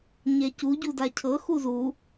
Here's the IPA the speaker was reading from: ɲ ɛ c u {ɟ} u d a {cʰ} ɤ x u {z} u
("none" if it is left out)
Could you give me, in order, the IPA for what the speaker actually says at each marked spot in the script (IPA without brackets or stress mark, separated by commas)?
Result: ɟ, cʰ, z